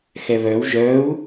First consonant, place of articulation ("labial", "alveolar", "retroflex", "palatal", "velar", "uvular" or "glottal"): velar